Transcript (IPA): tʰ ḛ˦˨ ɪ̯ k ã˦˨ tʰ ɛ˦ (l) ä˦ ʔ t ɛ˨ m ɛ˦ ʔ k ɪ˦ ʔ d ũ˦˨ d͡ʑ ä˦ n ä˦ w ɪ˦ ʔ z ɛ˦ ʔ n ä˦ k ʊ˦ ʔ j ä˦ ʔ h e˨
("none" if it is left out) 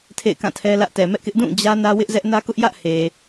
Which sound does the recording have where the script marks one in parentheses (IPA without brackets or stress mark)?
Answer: l